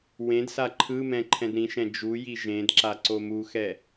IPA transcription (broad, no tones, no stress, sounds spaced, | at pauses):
w ẽ d s a ǃʰ ɯ m ɛ̃ ǃʰ ɛ̃ d ɾ ĩ ʃ ɛ̃ d͡ʒ u j i ʒ ẽ d ǁ a ǀ o m u x ɛ